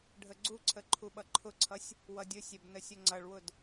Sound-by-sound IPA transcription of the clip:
ɖʱəɡ͡ǀuǀʰə ǃʰuɓʌǃʰʊǀʰʌsʲ | wʌdʲʊsʲɛb nəsʲʊŋ͡ǀʌɭwʊd

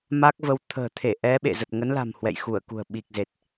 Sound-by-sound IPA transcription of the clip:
ma˦˥k̚və˧w t̪ʰə̤ː˨˩t̪ʰe˧˩ʔɛ˨˦ ɓḛ˧˨ zə˨˩t̚ŋə˨˦nla̤˨˩m hwɛ̰˧˨jxu˧˩ə̯kṳ˨˩ə̯ ɓi˨˩k̚ze˨˩t̚

